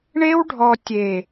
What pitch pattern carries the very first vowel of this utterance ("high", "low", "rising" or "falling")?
high